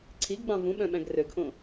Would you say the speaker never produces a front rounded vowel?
no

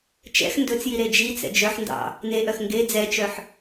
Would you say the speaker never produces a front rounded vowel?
no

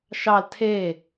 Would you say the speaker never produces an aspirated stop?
no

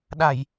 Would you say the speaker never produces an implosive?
no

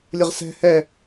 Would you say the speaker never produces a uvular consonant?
no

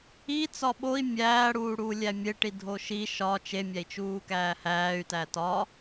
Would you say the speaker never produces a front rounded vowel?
no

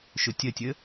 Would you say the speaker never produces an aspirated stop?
yes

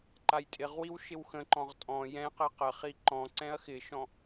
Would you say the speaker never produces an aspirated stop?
yes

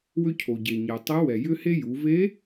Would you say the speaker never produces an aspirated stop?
no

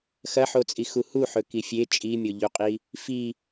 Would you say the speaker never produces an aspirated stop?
yes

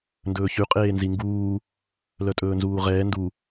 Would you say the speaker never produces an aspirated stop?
yes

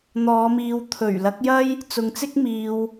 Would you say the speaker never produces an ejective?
yes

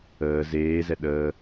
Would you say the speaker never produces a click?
yes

